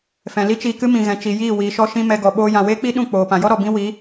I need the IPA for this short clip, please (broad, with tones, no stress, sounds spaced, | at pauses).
f ɛ̃˨ l i˦ t͡ʃ iː˧ k ɨ˦ m ĩ˨ ɣ ɛ̃˨ t͡ʃ i˨ j iː˦˨ w iː˨ ʃ ɔ˧ ʃ ĩ˧ m ɛ˧ ɡ ɔ˨ ɓ oː˧ j ã˨ w eː˦ k͡p i˦ ɗ ũ˦˨ k͡p oː˨ p ã˨ j ɔ˦ ɾ ɔ˨ b ĩ˦ w i˨˦